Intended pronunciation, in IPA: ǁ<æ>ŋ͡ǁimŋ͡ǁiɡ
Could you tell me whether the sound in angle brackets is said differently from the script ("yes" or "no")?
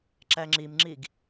no